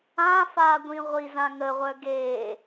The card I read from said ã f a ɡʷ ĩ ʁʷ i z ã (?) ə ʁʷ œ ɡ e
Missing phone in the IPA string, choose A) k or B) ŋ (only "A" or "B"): B